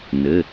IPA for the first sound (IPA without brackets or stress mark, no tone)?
n